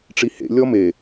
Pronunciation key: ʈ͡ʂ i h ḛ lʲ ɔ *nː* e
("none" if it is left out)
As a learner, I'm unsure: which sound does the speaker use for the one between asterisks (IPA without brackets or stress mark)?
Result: m